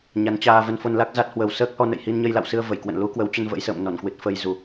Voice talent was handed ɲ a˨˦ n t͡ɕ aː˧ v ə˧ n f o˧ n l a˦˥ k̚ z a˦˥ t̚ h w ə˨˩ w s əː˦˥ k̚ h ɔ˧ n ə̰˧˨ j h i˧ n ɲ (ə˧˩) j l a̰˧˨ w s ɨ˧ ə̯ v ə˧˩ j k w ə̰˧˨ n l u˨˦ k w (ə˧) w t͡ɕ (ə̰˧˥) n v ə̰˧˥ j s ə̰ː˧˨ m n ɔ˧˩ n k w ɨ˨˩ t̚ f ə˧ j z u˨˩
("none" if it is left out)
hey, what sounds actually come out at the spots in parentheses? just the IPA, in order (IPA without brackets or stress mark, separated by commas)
ə˧, ə˨˦, ə˧